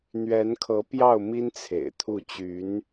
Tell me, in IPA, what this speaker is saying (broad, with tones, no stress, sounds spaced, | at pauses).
n̪ ɥ ɛ˧˥ n kʰ ɤ˧˥ p j ɑ˥˩ ʊ̯ m i˥ n t͡sʰ ḛ˨˩ ɪ̯ t̪ʰ u˥˩ t͡ɕ y˧˥ n